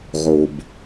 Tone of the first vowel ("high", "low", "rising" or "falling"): low